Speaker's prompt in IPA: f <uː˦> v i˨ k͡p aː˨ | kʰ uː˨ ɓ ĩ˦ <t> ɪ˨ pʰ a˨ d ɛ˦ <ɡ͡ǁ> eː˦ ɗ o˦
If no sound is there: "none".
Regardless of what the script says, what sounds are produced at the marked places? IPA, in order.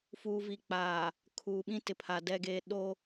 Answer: uː˨, t, ɡ

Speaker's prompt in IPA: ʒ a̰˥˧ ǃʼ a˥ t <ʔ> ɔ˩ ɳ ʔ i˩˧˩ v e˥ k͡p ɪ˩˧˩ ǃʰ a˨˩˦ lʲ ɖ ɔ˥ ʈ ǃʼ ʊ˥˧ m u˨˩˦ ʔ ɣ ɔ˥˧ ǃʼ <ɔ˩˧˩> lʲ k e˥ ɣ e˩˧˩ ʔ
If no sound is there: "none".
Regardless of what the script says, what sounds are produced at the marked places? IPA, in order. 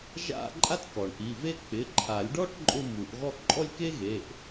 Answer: k, ɔ˥˧

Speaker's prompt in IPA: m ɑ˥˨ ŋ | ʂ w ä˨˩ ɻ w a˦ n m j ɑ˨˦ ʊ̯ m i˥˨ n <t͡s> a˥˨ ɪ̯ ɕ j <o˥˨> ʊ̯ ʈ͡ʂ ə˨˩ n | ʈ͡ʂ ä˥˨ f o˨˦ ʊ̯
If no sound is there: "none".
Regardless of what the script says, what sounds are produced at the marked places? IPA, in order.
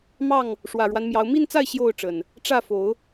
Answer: t͡s, o˥˨

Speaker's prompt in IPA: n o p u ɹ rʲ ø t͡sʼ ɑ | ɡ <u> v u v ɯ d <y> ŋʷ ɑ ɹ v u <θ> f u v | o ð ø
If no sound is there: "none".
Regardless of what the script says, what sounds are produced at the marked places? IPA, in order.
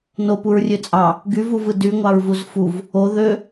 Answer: y, y, z

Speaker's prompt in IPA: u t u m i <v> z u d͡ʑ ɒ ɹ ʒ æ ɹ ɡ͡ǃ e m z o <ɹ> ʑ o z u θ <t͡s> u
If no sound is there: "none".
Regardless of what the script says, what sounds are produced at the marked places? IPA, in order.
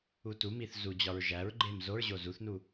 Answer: θ, ɹ, n

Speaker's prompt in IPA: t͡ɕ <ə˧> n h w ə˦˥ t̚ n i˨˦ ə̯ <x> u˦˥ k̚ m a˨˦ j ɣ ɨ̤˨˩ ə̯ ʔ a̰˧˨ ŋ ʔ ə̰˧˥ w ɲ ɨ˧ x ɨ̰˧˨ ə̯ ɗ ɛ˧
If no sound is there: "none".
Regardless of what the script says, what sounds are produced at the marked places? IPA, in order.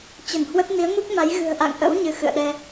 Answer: ə˧˩, ŋ

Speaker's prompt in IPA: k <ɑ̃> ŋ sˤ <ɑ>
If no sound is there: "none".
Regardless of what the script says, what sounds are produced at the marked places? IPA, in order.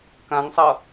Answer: ã, ʌ

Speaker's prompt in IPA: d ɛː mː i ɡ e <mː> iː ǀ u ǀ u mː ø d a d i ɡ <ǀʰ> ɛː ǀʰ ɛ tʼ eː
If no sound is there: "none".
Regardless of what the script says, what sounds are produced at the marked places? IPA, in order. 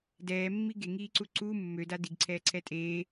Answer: ŋ, ǀʰ

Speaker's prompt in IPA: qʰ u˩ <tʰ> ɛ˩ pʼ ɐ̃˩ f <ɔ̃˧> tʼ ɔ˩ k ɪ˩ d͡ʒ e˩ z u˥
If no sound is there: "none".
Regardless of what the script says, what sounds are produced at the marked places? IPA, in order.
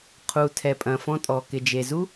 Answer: tʰ, ɔ̃˧

